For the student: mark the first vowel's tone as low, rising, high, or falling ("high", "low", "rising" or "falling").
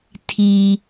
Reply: high